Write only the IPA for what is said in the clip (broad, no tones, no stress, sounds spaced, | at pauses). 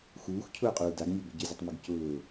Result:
x uː x cʰ ʊː qʼ uː d a ɡ nʲ ɔ b e ɟ ɪ zʲ ʊ tˤ m ɪ ɡ c ʊː